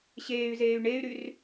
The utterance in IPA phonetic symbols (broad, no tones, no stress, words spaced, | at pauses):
ɕeːy̯zeːy̯ ɳey̯ɾyr